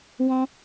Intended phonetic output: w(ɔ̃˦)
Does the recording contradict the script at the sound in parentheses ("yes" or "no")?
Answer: no